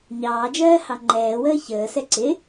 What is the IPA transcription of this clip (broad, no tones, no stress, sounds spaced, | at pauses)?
ɲ ɑː d͡ʒ ɜː h ɑ ŋ͡ǃ ɛː w əː ç əː s ɛ ǀ ɪ